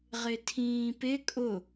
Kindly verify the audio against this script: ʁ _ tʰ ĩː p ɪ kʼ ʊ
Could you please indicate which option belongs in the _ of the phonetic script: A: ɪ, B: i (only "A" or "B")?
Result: A